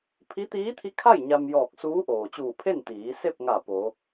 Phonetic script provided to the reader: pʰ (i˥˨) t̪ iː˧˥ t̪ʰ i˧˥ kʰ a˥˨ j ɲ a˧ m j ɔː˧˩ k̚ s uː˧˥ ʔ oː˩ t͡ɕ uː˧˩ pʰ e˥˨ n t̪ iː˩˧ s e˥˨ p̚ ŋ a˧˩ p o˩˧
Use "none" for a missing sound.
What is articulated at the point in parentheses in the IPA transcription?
i˧˥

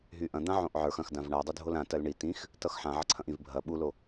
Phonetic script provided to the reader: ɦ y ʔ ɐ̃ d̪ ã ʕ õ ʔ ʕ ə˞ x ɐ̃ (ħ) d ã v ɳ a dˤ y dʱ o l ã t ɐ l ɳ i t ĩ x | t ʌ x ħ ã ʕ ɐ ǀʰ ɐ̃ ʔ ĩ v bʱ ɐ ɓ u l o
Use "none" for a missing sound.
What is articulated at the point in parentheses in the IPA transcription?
x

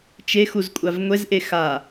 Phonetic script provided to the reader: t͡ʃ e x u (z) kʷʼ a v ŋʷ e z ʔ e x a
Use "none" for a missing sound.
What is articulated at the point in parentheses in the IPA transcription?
z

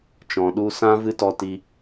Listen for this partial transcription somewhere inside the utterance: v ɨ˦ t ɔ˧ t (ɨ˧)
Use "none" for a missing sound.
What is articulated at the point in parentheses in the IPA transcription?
i˧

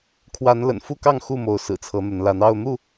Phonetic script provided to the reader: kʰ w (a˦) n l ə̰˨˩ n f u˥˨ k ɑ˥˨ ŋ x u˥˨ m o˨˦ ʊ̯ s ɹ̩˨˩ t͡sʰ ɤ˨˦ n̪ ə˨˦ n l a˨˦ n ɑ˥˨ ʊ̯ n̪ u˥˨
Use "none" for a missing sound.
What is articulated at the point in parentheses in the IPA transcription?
a˨˦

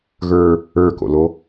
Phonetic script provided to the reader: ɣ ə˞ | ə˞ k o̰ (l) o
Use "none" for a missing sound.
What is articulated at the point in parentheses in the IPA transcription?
l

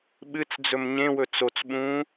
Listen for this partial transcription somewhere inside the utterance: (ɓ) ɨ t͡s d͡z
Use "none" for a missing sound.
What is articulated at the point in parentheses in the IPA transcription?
ɓ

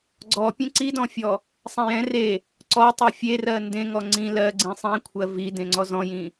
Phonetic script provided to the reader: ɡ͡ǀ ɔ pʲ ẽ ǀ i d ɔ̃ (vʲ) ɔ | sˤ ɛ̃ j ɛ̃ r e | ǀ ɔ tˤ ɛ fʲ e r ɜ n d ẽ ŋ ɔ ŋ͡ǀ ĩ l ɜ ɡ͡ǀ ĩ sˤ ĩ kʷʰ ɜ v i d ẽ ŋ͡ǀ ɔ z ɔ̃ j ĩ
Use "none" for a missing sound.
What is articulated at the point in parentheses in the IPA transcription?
fʲ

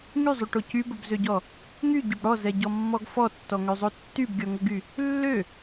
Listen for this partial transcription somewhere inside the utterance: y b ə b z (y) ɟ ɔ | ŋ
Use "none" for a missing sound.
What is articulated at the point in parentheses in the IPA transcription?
ø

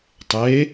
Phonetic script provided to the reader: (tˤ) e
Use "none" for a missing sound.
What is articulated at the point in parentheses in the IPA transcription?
tˤ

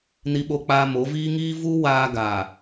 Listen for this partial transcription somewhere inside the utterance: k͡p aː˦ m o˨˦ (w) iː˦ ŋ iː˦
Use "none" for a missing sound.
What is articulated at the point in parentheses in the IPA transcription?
v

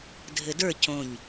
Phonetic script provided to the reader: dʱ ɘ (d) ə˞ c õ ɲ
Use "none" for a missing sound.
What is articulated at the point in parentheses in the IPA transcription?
d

